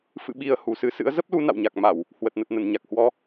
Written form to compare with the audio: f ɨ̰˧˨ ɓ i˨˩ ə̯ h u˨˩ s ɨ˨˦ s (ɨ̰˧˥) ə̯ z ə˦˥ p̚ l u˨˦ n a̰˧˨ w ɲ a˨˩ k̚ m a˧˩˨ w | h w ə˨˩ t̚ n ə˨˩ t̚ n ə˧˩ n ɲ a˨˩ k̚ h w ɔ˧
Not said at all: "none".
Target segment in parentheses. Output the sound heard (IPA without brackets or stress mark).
ɨ̰˧˥